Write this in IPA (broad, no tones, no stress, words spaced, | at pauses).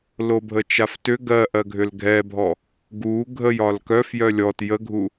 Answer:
lobʱət͡ʃaftʏ ɡɜʔɜ ɡʱʏlɡʱɛbʱɔ | ɡu ɡʱəj ɒlkœf jœlʲɔt jəɡʱu